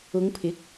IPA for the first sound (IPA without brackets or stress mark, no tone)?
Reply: ʊ